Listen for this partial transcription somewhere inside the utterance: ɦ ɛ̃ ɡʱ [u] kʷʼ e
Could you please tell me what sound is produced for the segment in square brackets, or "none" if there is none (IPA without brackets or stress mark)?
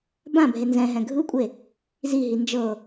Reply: ɯ